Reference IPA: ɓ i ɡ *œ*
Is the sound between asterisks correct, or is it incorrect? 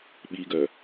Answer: correct